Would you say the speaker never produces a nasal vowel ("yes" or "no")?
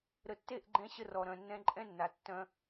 no